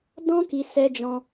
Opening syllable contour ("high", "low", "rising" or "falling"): high